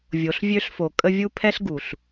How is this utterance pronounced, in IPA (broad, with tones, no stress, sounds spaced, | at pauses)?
vʲ o˨ ɬ vʲ ø˦ ɬ f o˨ kʼ ə˦ vʲ u˦ pʰ ɛ˦ ɬ ɡ u˨ ɬ